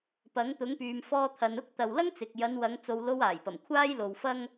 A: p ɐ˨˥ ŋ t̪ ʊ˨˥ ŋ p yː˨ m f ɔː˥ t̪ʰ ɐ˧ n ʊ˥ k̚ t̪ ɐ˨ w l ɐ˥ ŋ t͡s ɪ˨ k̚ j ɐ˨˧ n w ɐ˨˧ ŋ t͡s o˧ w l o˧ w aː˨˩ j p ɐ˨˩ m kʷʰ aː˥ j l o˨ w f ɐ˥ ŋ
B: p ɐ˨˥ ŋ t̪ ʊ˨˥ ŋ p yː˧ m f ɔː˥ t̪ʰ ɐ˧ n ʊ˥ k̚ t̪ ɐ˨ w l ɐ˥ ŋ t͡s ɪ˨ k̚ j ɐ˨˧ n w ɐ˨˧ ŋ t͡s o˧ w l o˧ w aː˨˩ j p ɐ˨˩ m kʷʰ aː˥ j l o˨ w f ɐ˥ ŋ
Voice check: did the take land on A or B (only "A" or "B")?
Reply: A